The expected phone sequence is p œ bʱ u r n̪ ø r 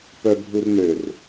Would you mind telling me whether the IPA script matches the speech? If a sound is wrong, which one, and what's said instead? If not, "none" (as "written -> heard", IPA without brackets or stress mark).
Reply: none